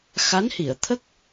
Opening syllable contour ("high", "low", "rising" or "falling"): rising